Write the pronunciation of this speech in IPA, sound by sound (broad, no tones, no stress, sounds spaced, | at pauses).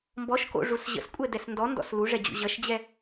m b ɔ ʃ k o̰ ʐ u s ʑ ə̰ s kʷʼ ɛ d ɛ s n d ɔ n d ɔ̰ s l u ʐ ɛ d͡ʑ ṵ ʑ ʌ ʃ d͡ʑ ɛ